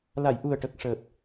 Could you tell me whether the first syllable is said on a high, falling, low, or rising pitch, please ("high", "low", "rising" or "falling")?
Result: low